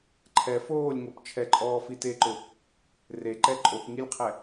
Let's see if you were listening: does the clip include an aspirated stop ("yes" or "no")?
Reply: yes